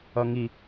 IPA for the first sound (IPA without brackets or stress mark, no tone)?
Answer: ʌ